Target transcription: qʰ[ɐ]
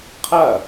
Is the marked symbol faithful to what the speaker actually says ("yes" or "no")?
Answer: yes